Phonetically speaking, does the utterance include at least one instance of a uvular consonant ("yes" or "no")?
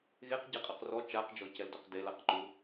yes